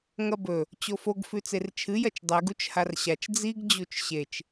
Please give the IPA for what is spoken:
ŋ ɐ b ɵ | t͡ɕ o f o ɡ f ʉ t͡s e r t͡ʃʰ ɨ j ɐ t͡ʃ dˤ e ɡ u t͡ʃ h a r ɕ a t͡ʃ d͡z i ɡ d͡ʑ u t͡ʃ ɕ e t͡ʃ

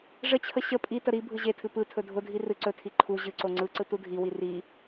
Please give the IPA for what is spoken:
ʐ ə t͡ɕʰ ə ɕ ə pʼ i t ə ɾ i bʱ ɯ ʑ e tʰ ɨ p ɯ tʰ ɵ dʱ ʊ dʱ i r ɨ ǀ ɵ tʰ i ǃʰ u ʑ ɨ ǀ o ŋ͡ǀ ɯ ǀ ɯ t u dʱ i w i r i

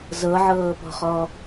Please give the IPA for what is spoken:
z ɤ ʕ ɤː p ɔ̤ χ ɔ

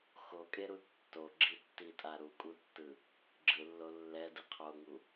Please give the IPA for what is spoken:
x o kʼ e ɾ u tː o ɡ͡ǁ i tː i tʼ a ɾ u kʼ u tː ɯ | ɡ͡ǁ ɯ lː o lː ɛ d ɯ qʰ o ŋ u

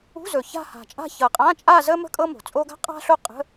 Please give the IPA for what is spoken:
ṳ˧˥˧ z ɵ˨˩ ç a̤˥˧ h a̤˨˩ t͡ʃʼ a̤˥˧ ç ɤ˨˩ qʼ ã˧˥˧ t͡ʃʼ a˥˧ z ə˥ m ə̤˥ kʼ ɤ˥ m o̤˨˩ t͡sʼ o˥ ɡ a̤˥ qʼ a̤˥ ɬ o˥˧ qʼ ə̤˧˥˧

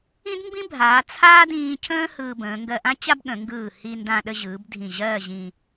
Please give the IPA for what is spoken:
ĩ˥ d m b ĩ˥ bʱ aː˩˧ t͡sʰ aː˥ d ĩː˧ cʰ ə̃ː˥ h ɯː˧ b ə̃ː˩˧ ŋ ɡ ɜ˧ ʔ ã˥ t͡ɕ a˥ b ɠ ə̃˩˧ ŋ ɡ ɯː˧˩ h i˧ n d ã˧ ɗ ə˧ ʑ ɯː˩˧ b dʱ ĩ˧˩ ʑ ɜː˥˧ ʑ ĩː˧

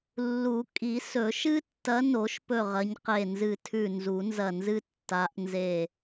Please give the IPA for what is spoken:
lː u˨˩˦ kʼ i˨˩˦ s ɵ˨˩˦ ʃ ɨ˦ tː ɐ˨˦ n o˨˩˦ ʃ p ɵ˧˩ ʁ ɐ˨˦ ɲ q e˧˩ n z ɨ˧˩ tʰ ʉ˧˩ n z u˨˩˦ n z ɐ˧˩ n z ɨ˦ tː a˨˦ ʔ n z e˧˩

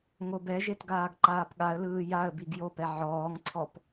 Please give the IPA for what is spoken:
ŋ o b ɛ ʒ e t ɡ aː ɡ ǃ aː p ɠ a ə̯ l ɯː j a ə̯ b i ɡ j o p ɛ ʕ ɔː ŋ ǀʰ ɔ p

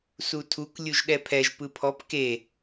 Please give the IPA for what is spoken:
s u tʰ u k lʲ u ʒ ɗ ɛ pʰ ɛ ʒ p ɯ pʰ ɔ p k e

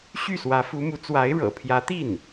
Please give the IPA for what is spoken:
ɕ y˥˩ s w ä˧˥ f u˧˥ m u˧˥ t͡s w a˧˥ ɪ̯ ɻ ɤ̰˨˩ pʰ j ä˧˥ t̪ i˥˩ n

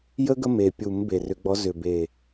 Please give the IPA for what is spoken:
j ə˦ ɡ ə˦ m e˨˩ pʲ u˨˩˦ m b e˨˩ r ʏ˨˩˦ ɡ͡b ɔ˨˦ z ʏ˨˩ b e˨˩

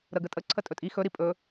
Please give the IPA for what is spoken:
ɾ ə ɡ ə tʼ ə ǀʰ ə tʼ ɵ tʼ i x ɵ ɾ i pʼ ɵ

